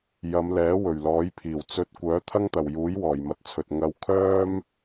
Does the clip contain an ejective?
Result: no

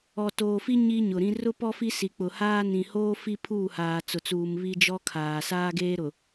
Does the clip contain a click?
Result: no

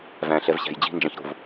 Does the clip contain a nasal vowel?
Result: yes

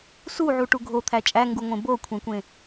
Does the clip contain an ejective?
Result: yes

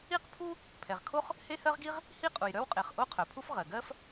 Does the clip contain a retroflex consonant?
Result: no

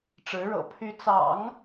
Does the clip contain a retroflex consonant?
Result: yes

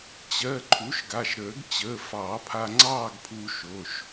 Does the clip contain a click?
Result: yes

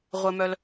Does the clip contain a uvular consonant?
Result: yes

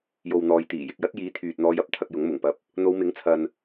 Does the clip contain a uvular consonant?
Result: no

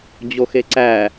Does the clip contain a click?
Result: yes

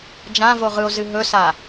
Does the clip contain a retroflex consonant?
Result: no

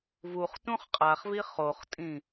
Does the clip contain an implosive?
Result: no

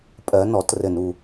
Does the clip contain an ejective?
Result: yes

